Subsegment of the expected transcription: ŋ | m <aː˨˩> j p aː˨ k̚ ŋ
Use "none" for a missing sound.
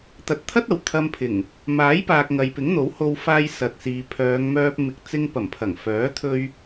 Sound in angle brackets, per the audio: aː˨˥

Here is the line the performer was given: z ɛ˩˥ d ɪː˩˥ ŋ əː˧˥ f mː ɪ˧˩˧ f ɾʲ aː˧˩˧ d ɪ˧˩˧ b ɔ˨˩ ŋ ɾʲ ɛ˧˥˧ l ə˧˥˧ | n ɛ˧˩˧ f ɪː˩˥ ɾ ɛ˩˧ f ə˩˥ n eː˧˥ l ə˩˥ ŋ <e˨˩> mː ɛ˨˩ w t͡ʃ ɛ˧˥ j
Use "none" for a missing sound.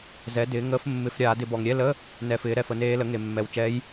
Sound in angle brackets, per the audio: e˨˩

